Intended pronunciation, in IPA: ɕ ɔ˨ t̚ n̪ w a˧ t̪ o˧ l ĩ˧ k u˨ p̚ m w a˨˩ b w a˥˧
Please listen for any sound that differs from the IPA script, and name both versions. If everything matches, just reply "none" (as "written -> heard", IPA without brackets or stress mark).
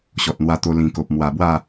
u˨ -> o˨